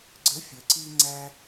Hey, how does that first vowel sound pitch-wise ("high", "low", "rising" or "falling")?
rising